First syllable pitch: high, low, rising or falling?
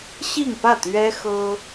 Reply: falling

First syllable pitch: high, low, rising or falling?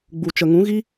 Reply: low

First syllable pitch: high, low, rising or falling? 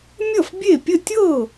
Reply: falling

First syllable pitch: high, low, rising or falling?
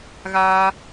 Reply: high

